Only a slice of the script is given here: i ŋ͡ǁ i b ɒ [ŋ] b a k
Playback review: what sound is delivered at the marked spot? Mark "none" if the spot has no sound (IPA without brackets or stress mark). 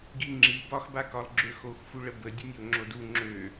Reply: x